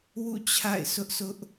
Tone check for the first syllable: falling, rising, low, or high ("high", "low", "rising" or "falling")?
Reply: falling